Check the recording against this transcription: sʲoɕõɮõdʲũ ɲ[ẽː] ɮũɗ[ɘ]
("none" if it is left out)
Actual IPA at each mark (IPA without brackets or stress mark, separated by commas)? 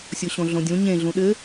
ẽ, ɘ